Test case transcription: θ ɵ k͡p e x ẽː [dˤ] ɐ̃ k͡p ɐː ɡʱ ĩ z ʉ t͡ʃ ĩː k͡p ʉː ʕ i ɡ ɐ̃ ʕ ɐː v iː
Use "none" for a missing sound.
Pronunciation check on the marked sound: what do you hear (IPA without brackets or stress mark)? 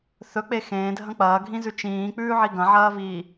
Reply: dʱ